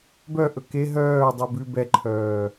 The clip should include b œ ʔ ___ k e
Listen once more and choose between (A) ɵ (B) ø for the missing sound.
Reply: A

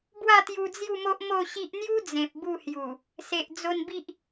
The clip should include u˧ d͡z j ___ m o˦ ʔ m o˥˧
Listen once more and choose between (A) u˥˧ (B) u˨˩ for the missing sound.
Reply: A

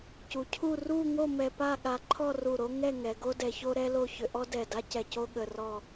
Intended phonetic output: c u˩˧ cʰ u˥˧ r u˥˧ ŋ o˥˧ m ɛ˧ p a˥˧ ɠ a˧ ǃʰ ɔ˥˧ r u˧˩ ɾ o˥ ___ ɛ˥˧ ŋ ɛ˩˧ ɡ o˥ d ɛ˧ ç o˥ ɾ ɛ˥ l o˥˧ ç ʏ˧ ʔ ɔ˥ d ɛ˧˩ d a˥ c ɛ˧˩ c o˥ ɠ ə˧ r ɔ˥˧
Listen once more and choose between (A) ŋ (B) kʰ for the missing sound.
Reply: A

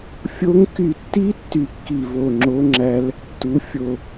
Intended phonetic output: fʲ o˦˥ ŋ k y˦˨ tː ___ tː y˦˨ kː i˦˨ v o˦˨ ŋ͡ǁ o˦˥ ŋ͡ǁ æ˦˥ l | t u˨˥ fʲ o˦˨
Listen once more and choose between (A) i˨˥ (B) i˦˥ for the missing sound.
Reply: B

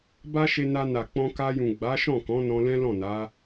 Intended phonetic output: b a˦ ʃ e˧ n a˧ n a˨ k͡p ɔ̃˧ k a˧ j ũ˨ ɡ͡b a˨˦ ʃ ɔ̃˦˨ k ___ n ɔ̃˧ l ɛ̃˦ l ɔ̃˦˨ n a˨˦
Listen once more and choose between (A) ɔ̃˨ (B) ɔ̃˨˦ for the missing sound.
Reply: B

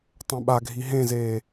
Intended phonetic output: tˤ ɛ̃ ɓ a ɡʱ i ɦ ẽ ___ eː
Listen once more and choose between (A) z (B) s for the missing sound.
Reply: A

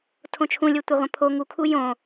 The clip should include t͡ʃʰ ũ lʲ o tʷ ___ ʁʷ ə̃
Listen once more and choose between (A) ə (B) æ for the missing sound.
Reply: A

